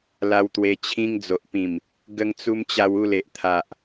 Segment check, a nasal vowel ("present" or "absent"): present